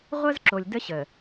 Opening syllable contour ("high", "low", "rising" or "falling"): high